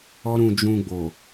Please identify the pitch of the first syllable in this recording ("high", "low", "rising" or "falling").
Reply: high